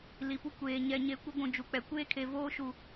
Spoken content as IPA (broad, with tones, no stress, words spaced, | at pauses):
li˨pu˦ kʷeː˨ ɲɛ˨ ɲe˨˦kʷe˦ɡʷũ˨ d͡ʒu˨k͡pɛ˨ kʷeː˦kʰe˨ voː˦ʃu˨